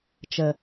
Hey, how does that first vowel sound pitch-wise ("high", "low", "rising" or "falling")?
low